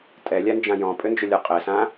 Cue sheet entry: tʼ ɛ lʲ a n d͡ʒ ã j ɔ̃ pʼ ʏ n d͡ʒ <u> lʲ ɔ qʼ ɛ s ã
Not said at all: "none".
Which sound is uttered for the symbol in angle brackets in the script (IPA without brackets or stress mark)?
ʏ